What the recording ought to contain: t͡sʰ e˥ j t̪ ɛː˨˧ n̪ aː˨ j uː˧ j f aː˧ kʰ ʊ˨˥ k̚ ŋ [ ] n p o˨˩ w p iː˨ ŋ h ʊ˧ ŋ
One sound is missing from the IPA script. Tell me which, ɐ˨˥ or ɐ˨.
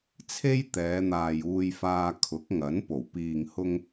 ɐ˨˥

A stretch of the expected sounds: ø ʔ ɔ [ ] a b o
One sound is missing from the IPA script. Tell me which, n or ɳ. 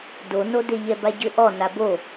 n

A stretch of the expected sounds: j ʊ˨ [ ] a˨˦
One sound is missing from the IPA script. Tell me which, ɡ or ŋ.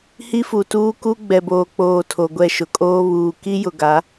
ɡ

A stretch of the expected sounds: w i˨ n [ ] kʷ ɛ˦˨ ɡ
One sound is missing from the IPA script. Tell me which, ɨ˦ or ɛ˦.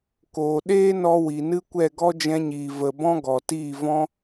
ɨ˦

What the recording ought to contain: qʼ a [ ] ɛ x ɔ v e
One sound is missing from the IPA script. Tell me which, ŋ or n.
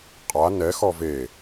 n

